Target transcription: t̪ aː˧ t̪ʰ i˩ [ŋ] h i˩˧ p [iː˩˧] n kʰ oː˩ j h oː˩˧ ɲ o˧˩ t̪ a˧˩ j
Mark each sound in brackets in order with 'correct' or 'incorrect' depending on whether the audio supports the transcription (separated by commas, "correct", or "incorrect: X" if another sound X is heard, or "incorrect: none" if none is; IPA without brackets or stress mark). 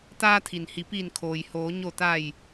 incorrect: n, incorrect: iː˧˩